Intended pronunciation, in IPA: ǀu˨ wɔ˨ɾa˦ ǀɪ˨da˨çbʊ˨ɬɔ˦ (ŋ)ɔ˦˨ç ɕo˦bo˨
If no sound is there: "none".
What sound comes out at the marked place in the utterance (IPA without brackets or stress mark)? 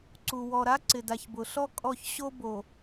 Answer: kʼ